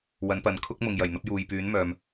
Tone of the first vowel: rising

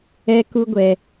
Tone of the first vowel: high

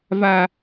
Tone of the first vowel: high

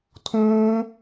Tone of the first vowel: high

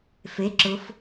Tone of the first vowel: rising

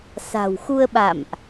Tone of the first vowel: low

